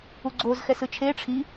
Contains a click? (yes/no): yes